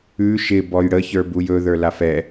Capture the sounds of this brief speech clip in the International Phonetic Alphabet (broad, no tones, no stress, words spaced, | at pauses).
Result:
ʉ ʃɪ bɔjɽə çə˞bujɵ ðə˞lafɛ